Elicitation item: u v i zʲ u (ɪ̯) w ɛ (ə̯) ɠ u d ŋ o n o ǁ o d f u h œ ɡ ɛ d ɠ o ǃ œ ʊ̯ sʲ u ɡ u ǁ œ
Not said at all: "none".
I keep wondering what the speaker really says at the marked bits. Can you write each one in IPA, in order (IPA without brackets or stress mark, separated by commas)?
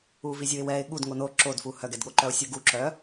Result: ɪ̯, ɪ̯